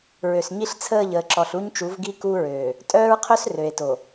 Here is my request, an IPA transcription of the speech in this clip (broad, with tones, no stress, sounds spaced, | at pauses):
ɹ ø˨ s ɲ i˦ ɬ t͡sʰ əː˦˨ ʎ əː˨ ǁ ɔ˨ ɬ u˦ ɲ t͡ʃ u˨˦ v ɡ i˦ k u˦ ɹ øː˨ | tʼ œː˦ ɹ qʰ œ˦ s r ø˨ e̯ t o˨